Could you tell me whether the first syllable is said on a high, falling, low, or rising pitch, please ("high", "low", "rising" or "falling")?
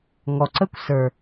low